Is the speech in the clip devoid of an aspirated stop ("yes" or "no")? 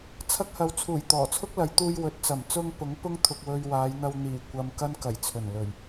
no